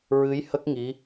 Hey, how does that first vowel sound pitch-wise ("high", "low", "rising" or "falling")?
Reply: rising